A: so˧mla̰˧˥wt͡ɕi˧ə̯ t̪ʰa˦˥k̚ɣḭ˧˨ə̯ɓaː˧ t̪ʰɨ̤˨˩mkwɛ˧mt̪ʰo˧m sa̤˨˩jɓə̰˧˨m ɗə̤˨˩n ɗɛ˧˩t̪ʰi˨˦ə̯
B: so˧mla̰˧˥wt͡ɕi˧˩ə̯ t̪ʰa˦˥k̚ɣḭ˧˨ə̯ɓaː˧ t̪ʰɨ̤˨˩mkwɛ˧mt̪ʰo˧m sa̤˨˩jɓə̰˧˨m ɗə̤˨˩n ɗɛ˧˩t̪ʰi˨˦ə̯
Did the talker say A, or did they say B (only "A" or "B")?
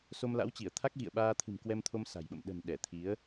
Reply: B